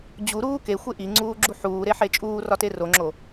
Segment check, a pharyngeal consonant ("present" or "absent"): present